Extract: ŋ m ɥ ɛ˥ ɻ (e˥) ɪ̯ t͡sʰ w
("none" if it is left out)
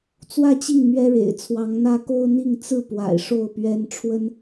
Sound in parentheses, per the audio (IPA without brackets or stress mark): ḛ˨˩